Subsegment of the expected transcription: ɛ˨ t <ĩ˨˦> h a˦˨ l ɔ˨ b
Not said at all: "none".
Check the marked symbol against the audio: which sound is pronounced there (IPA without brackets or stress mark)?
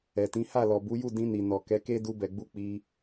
ĩ˨˦